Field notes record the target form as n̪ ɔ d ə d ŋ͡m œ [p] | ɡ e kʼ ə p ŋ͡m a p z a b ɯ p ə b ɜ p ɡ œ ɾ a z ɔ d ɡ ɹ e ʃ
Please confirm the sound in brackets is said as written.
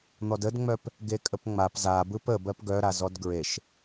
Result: yes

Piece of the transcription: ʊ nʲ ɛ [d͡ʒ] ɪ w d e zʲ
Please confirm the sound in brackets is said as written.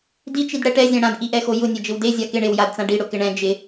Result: yes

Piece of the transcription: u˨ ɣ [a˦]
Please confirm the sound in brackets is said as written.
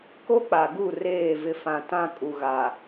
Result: no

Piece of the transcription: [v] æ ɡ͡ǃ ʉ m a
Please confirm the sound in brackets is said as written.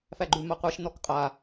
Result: no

